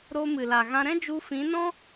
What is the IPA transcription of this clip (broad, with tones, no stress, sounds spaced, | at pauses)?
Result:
ɾ o˧ m ɨ˨ l a˨ ɣ ã˧ ɾ ɛ̃˦ d͡ʒ u˧ f ĩ˨˦ n ɔ̃˦